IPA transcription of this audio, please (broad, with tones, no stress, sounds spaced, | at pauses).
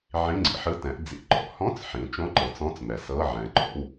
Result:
ʕ ĩ˧˥˧ ŋ͡ǀ ḭ˩˧ ħ ɯ˧˥˧ t ɛ̃˩˧ ʔ d͡z ḭ˧˥˧ ǃ ɔ̰˩˧ h ɔ̃˧˥˧ t͡s ħ ĩ˩˧ t͡ʃ õ˧˥˧ ǃ ɤ˩˧ t͡s ɔ̃˧˥˧ t͡s m ɛ˩˧ s ɤ˧˥˧ ʕ ɛ̃˩˧ ǃ ɔ̰˧˥˧ w